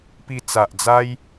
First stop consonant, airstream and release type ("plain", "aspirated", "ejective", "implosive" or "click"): plain